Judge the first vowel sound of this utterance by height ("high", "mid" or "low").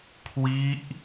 high